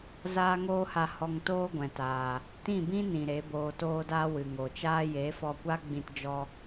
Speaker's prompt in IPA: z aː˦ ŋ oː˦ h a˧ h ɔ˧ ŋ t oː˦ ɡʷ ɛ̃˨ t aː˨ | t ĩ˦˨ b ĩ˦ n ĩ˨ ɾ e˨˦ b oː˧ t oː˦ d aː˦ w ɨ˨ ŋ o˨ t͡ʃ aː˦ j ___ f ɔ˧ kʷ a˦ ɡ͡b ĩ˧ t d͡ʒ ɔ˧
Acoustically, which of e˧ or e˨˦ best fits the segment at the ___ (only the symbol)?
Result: e˨˦